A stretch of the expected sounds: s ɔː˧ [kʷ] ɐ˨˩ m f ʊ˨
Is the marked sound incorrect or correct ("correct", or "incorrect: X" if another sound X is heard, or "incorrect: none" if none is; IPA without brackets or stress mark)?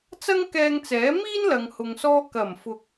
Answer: incorrect: k